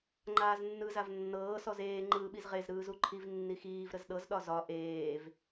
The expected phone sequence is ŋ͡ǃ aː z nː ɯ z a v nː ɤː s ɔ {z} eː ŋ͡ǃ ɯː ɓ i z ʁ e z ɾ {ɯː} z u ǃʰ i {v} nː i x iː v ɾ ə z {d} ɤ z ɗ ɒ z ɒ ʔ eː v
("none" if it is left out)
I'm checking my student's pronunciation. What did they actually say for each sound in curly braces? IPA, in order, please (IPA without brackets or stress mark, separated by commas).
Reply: z, ɯː, v, ɗ